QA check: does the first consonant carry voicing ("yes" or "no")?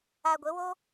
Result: yes